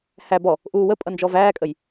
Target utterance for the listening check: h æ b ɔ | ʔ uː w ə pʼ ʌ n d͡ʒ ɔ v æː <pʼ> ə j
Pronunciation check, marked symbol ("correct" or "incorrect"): incorrect